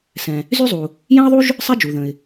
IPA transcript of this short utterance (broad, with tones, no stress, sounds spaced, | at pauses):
s ɛ̃˩ | z y˥ zˤ u˩ | j ɛ̃˥ ə̯ ðˤ u˥ ʒ | sˤ ɛ˥ d͡ʒ u˩ ð ə̃˩ ɪ̯